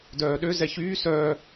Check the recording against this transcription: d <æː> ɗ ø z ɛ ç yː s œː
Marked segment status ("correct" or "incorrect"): incorrect